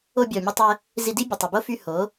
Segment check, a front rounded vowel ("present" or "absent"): present